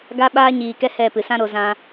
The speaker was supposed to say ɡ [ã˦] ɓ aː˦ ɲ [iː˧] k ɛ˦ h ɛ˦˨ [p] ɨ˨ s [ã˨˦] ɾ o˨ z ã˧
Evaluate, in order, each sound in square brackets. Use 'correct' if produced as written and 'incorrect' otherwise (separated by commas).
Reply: incorrect, incorrect, correct, incorrect